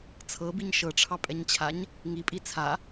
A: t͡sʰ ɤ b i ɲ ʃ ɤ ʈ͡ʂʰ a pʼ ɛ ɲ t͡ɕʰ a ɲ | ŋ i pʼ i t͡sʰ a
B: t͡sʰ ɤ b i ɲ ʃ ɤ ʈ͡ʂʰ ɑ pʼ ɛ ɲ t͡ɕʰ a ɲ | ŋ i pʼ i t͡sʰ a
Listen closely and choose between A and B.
B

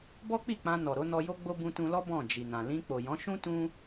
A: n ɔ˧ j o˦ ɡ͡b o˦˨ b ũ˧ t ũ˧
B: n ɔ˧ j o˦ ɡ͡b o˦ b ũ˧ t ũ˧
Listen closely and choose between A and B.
B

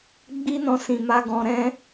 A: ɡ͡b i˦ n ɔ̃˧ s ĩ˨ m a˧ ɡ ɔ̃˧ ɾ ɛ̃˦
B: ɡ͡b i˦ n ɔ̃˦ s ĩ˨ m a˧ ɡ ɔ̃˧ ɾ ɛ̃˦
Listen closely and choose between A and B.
A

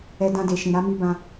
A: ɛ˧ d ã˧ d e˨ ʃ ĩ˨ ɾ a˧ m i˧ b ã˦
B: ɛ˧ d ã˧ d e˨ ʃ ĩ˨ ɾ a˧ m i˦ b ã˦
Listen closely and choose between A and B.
A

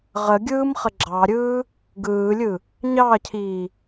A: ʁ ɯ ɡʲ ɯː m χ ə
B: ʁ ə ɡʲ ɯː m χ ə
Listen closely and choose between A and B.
B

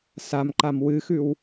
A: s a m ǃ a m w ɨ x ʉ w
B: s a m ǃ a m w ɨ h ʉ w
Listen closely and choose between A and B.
A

